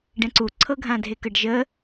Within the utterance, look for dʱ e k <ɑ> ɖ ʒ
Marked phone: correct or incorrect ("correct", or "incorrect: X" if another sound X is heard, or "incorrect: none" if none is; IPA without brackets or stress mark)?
incorrect: ə